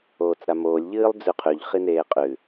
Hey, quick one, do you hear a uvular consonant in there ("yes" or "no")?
yes